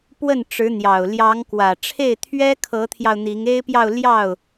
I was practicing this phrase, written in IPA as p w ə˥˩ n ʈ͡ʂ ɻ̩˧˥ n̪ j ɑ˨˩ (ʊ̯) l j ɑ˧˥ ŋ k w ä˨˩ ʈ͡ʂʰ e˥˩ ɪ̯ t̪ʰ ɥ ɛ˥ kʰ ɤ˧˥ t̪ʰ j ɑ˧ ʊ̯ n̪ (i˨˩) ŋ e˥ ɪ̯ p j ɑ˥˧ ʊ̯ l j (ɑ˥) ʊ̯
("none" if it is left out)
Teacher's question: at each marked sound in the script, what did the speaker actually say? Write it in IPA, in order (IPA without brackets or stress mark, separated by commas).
ʊ̯, i˧˥, ɑ˥˩